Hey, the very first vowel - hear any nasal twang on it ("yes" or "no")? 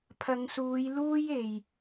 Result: no